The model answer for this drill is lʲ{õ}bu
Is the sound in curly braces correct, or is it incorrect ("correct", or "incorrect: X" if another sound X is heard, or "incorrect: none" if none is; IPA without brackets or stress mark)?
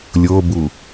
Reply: incorrect: o